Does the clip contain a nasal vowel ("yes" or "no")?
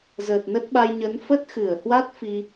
no